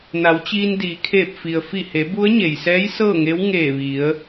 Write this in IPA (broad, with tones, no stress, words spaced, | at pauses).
na˩˧wt͡ɕiː˧n diː˩˧kʰeː˧˩p̚fi˩ə̯ fi˧˩he˩˧ bu˧˥ə̯ɲe˩jsɛː˧˥j sɤː˥˨ŋe˧˥w ŋeː˧˩ʋi˩˧ə̯